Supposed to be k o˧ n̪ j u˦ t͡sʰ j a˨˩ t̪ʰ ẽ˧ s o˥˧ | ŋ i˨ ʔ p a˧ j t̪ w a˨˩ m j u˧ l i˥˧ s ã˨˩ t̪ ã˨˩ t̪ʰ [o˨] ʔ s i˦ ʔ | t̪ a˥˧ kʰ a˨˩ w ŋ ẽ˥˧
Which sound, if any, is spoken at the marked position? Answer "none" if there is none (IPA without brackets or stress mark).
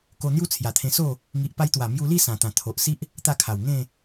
o˨